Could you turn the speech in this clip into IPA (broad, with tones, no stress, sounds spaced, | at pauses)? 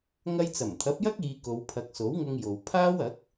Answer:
ŋ ɐ˧ j t͡s ɐ˨˩ m t̪ʰ ɐ˨˥ p̚ j ɐ˥ k̚ iː˧ k o˨˧ w pʰ ɐ˨˥ k̚ s o˨˥ w ŋ ʊ˧ ŋ j o˨ w pʰ aː˥ w ɐ˨˥ k̚